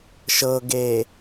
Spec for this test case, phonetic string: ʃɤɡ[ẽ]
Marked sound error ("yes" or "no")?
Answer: yes